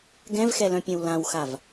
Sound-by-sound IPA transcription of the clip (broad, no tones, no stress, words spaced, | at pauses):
ɡɛ̃vxɛlœ̃pʲɐ̃w lãwxav